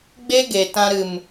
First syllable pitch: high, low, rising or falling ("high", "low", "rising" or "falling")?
high